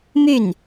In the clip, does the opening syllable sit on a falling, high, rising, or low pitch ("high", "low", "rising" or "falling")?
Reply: falling